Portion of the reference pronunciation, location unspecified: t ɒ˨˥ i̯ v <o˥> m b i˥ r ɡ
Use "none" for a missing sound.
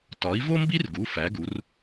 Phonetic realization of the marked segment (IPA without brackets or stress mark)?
o˥